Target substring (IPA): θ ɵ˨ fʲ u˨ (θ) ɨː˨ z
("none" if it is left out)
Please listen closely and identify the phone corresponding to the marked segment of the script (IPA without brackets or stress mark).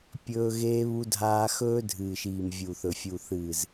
θ